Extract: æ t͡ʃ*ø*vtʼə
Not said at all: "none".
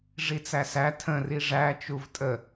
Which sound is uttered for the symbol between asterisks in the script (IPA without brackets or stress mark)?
u